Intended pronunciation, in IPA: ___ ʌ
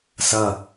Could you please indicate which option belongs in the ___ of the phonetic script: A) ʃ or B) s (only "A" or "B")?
B